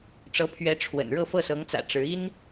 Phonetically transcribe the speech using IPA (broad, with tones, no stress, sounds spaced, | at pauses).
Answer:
ʈ͡ʂ ɤ˧˥ pʰ ɥ ɛ˧˥ ʈ͡ʂʰ w ə̰˨˩ n ɻ ɤ˥˧ f ɤ˥˩ s ɤ˧˥ ŋ t͡s ä̰˨˩ ʈ͡ʂ ɻ̩˧˥ i˥ n